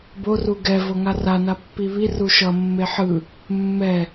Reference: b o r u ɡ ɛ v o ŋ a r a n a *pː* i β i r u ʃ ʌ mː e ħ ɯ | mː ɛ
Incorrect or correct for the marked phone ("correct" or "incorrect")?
correct